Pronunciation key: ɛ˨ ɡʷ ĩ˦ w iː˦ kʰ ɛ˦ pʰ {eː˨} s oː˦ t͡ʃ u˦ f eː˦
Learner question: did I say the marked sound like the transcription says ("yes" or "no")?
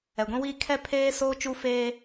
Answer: no